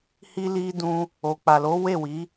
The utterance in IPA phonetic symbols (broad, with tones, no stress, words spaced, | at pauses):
hi˦li˦dũ˦ | o˨k͡pa˨lo˨˦ we˦˨wi˨˦